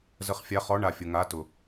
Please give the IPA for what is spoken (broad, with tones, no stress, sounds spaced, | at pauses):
z ə˨˥ χ fʲ a˨˥ χ ɔ˨˥ ɳ a˨ fʲ ʊ˨ ŋ a˨˥ t ʊ˨